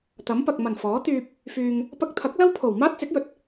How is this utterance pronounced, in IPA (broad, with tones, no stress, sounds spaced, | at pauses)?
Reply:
t̪ ɐ˨˥ m p ɐ˨ k̚ m ɐ˨˩ n f ɔː˨˥ t̪ yː˧ p̚ | f yː˨ ŋ | p ɐ˧ k̚ t̪ʰ ɐ˨˥ k̚ l ɐ˥ w pʰ o˨˩ w m aː˥ t̚ t͡s ɪ˨˥ k̚ j ɵ˨˥ t̚